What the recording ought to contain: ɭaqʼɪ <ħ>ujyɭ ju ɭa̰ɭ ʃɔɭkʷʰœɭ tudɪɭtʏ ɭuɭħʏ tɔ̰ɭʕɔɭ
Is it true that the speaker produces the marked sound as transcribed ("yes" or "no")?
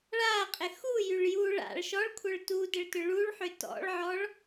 no